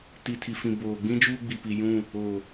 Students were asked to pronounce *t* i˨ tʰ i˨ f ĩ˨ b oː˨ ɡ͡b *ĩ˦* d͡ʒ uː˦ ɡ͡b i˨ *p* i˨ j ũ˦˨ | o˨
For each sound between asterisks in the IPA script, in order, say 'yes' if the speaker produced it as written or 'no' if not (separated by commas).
yes, yes, yes